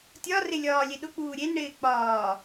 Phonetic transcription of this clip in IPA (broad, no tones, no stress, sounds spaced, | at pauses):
tʲ ɒ r ɪ lʲ ɒː lʲ e ɗ ʊ k͡p uː ɾʲ e n ɽ ɪː k͡p ɒː